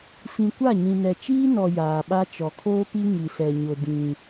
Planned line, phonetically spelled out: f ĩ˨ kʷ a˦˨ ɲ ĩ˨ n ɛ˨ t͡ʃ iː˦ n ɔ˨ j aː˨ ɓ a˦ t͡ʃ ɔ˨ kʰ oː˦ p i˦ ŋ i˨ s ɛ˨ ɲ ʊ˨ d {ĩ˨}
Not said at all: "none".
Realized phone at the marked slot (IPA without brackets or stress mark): ĩ˦